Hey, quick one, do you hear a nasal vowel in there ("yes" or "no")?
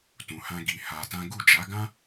yes